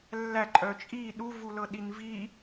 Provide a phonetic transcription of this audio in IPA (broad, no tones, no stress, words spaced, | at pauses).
lːæ ǃʼœt͡ʃʼi ɗuvulɤɗin vi